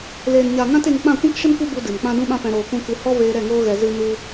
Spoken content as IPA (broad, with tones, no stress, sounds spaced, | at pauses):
l eː˨ n ɲ a˨ ŋ ã˦ t e˧ ŋ k͡p ã˦˨ kʷ ɛ̃˦ k ʃ ə˦ n kʷ ɨ˦ b u˧ d ɨ˨ m k͡p ã˦ d ũ˦ ɓ ã˦ p ɛ̃˧ ɾ oː˨ k ũ˧ k ɨ˧ h ɔ˦ v eː˧ ɾ ɛ˦˨ ŋ oː˦ ɣ ɛ˧ z ɨ˦ n u˦